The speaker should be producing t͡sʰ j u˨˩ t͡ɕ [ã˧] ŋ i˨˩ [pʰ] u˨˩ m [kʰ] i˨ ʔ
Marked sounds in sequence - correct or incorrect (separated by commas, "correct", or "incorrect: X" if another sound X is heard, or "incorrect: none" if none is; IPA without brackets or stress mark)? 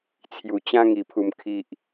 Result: incorrect: ã˦, correct, correct